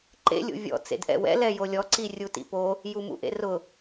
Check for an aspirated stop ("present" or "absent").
absent